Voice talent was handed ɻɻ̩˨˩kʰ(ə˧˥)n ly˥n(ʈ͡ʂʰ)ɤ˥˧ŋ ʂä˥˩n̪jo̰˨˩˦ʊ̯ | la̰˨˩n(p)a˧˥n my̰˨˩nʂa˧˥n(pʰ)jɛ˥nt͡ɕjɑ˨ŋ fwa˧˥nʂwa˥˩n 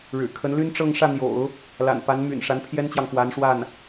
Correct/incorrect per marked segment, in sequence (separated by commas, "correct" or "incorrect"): correct, incorrect, correct, correct